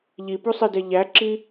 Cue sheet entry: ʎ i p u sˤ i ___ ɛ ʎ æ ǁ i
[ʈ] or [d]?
d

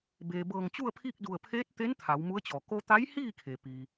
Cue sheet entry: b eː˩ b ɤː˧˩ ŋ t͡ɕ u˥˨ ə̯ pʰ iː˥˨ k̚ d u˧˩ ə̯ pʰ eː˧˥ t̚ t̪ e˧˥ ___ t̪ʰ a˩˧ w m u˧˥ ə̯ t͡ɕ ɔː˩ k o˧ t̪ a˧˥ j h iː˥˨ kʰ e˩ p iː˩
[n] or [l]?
n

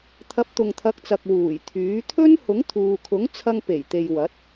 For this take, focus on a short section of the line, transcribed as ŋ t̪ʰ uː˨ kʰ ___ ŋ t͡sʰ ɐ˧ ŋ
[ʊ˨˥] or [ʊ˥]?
ʊ˨˥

